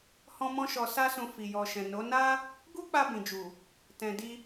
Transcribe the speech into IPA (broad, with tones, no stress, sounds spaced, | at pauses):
h ɔ̃˦ m ɔ̃˦ ʃ ɔ˧ s a˦ s ũ˧ f i˨ j ɔ˨ ʃ ɛ̃˨ n o˨˦ n a˦ | ɡ u˦ k͡p a˧ b ĩ˨ d͡ʒ u˨ | t ɛ̃˧ d i˧